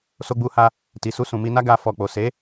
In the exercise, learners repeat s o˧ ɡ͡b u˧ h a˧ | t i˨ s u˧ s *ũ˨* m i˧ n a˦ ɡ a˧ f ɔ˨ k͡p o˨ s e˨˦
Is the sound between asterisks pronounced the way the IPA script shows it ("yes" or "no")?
yes